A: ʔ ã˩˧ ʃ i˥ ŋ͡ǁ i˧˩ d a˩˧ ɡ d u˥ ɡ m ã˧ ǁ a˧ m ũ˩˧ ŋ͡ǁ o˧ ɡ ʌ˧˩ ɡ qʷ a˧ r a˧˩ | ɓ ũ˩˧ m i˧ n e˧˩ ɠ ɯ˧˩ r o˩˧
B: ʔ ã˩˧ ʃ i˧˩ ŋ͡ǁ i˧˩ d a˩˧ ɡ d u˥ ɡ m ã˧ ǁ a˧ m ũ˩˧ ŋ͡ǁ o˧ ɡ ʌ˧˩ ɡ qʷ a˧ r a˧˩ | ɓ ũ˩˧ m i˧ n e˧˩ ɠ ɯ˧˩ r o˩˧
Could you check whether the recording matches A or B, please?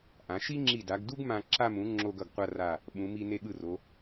A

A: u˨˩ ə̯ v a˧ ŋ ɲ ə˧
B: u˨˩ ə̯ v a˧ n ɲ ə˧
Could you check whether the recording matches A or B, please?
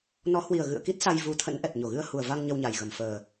A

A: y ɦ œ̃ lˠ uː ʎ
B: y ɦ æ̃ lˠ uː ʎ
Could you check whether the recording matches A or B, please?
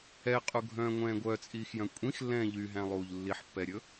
B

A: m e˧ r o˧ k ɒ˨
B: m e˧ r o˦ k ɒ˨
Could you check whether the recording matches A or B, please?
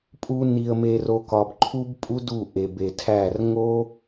A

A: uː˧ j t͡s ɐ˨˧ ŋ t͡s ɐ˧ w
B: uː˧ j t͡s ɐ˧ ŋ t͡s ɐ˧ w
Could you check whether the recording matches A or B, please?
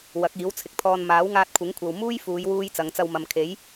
A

